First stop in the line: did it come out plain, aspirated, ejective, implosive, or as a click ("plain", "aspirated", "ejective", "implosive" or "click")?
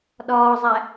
implosive